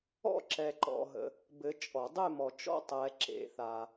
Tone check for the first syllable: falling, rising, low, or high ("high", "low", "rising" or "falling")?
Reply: falling